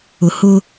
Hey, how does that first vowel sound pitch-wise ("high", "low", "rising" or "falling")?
low